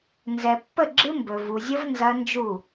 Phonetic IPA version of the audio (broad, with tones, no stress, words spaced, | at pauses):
nzɛ˨pːə˥˩ɡ͡ǁɨ˦˥ mbɵ˨ vu˨zʲə˦˥v nzɐ˦˥nd͡ʒu˥˩